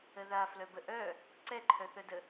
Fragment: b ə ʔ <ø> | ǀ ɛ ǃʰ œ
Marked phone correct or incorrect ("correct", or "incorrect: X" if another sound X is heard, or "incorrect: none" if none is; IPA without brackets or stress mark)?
incorrect: œ